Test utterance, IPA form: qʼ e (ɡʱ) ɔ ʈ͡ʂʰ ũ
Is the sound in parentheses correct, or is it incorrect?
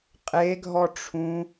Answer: correct